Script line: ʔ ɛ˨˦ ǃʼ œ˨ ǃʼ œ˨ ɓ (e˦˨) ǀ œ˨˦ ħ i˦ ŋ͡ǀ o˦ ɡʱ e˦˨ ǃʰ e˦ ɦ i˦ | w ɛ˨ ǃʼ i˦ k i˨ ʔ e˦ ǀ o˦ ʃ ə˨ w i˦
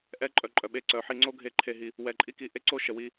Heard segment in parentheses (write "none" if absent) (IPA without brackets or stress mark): e˦˨